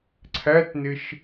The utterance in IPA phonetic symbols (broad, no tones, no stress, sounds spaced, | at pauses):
ǀʰ æ t n ɪ ʃ